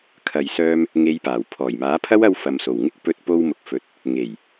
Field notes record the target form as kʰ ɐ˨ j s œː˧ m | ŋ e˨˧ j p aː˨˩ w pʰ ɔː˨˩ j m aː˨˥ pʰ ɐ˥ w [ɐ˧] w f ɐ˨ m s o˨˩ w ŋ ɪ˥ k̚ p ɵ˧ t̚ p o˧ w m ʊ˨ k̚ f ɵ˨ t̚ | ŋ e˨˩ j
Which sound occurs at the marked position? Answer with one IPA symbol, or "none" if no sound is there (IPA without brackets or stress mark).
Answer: ɐ˧